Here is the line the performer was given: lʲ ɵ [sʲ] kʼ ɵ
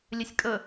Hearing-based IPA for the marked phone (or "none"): sʲ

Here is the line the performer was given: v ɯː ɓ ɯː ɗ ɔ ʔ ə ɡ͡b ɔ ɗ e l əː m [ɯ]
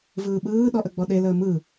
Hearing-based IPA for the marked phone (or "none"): ɯ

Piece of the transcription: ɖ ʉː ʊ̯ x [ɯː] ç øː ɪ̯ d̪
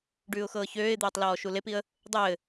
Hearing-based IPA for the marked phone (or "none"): ɤː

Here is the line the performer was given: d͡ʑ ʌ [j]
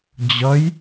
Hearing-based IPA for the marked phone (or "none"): j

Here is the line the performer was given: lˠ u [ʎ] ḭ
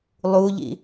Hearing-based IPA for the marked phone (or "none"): ʎ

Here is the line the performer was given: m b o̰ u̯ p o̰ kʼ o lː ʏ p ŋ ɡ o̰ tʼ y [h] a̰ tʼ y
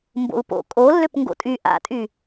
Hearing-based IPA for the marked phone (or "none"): ʔ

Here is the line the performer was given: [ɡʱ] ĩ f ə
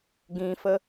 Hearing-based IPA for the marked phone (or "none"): ɡ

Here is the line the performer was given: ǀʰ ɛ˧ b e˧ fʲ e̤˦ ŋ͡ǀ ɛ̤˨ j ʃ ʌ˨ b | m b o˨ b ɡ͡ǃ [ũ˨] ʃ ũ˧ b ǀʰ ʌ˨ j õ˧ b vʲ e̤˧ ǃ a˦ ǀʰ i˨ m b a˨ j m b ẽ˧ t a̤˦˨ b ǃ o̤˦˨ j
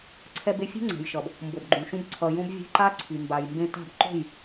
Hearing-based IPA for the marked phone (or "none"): ũ˨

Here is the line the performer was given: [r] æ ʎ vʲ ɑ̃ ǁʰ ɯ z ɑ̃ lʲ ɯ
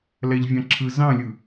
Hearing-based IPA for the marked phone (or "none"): l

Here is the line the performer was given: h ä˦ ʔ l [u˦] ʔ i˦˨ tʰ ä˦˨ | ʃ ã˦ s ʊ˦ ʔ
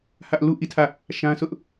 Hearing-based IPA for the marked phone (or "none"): u˦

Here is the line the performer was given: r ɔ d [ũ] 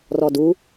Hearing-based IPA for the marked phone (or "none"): u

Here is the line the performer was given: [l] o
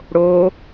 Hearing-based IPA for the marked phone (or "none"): ɽ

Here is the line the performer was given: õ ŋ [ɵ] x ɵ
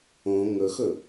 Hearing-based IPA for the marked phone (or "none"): ɵ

